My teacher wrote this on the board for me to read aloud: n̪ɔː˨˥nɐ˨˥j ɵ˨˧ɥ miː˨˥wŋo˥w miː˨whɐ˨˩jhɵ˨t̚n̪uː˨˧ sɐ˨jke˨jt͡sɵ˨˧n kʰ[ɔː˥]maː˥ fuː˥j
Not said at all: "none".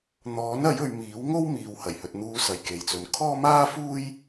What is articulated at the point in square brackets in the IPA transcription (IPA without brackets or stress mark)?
ɔː˥